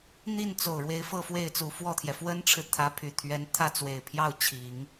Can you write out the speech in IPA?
n̪ i˥˩ n t͡s o˨˩ ʊ̯ ɻ w e˧˥ ɪ̯ f ɤ˥˧ f w e˥˩ ɪ̯ t͡s u˨˩ f w ɔ˥˩ t̪ʰ j ɛ˩ f w ə˥ n ʈ͡ʂʰ ɻ̩˨ t̪ʰ ä˧˥ pʰ y˨˩ t̪ʰ ɥ ɛ˧˥ n t̪ʰ ä˥˩ t͡s w e˨˩ ɪ̯ pʰ j ɑ˥˩ ʊ̯ t͡ɕʰ i˨˩˦ ŋ

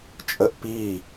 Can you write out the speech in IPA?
t͡ʃʼ ə ʔ p i

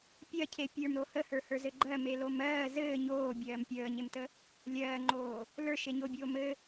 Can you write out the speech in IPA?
pʲ ɜ cʰ e pʲ ə˞ m ɾ o h ə h ə˞ h ə˞ z ɘ ɡ͡ǃ ɜ m e l o m ɜː z ɘː ɲ oː bʲ ɜː m pʲ əː ɲ e m t ə | lʲ ɜː ŋ͡ǃ oː | l ə˞ ʃ e ɲ o bʲ oː m ɘ

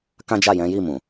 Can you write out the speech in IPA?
k ã˦ d͡ʒ a˦˨ j ɛ̃˨˦ j i˦˨ m ũ˨

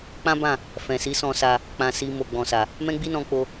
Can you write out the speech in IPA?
k͡p ã˦ b ã˦˨ | f ɛ̃˨ s i˨˦ s ɔ̃˧ s a˧ | k͡p ã˧ s i˧ m o˨ ɡ͡b ɔ̃˨ s a˨ | m ɛ̃˦ ɡ͡b i˦ n ɔ̃˧ k͡p o˦

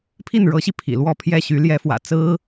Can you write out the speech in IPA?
pʰ i˥˩ n ɻ ɤ˧˥ ɕ i˧ pʰ ḭ˨˩ l w ɔ˥˧ pʰ j ɛ˥˩ ɕ y˧˥ l j ɛ˧˥ f w ä̰˨˩ t͡s ɹ̩˥

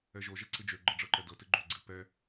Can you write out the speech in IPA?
ɛ ʒ o ʒ ɛ ǀ ɨ d͡ʒ ø ɡ͡ǃ ɜ ɖ͡ʐ ɤ ǃ ɛ d ɤ t ɨ ɡ͡ǃ ø ɡ͡ǀ ɨ p ɛ

